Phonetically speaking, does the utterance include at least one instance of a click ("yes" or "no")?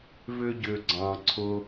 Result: yes